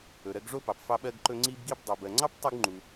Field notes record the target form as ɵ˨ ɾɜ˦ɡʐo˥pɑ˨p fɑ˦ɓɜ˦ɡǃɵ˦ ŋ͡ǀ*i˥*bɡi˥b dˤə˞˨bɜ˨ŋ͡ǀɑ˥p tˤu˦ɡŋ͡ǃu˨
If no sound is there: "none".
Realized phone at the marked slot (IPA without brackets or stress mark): i˥